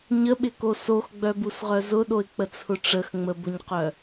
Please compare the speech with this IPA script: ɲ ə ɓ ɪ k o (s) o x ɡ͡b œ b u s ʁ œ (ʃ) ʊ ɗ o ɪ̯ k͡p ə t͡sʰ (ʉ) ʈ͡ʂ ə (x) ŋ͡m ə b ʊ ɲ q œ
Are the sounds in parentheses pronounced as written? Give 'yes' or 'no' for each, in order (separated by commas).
yes, no, no, yes